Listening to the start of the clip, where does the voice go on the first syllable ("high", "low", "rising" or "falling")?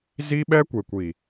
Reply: high